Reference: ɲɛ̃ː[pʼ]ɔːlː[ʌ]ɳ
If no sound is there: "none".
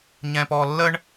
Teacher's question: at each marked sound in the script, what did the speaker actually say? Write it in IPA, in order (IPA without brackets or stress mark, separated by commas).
p, ə